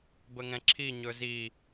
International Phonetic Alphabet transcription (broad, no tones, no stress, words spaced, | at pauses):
bəŋɛ̃ǁʰi ɲɵzi